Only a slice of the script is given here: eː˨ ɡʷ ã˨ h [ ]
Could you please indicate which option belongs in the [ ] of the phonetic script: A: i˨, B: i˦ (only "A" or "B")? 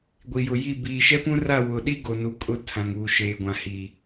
A